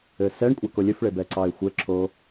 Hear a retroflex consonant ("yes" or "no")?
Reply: yes